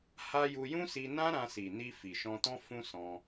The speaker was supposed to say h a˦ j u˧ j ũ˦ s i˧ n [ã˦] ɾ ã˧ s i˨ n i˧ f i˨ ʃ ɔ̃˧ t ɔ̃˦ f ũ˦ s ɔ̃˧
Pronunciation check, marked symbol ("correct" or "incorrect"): correct